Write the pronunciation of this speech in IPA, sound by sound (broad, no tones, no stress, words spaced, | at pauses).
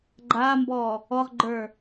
ɡ͡ǃaːmbɔː | ɔʁɡ͡ǃə˞